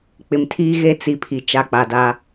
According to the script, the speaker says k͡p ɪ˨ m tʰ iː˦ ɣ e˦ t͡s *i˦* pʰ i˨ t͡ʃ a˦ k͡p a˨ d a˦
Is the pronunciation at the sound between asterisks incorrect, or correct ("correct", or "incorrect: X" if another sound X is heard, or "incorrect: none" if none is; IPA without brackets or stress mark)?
incorrect: i˨